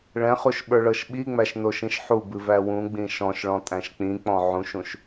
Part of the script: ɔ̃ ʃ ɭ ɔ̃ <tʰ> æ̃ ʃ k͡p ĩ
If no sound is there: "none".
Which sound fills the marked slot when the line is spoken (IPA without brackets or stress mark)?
tʼ